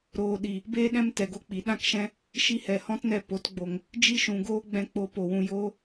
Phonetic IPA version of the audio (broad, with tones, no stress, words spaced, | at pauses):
ɾoː˨ɗi˨ | beː˦ ɗɛ̃˦mtɛ˨ɡo˦ k͡pi˨ɗã˦kʃɛ̃˦ | ʃi˧hɛ˨hɔ̃˦tnɛ˧ po˨˦tɡ͡bo˧ŋ | d͡ʒi˦ʃũ˨ɡoː˦ ɡ͡bɛ̃˧k͡po˧ po˨wũ˧ joː˦